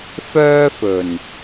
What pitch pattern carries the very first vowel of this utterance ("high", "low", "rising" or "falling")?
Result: high